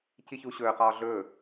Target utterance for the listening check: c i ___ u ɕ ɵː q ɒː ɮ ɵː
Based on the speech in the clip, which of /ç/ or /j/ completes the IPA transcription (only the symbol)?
ç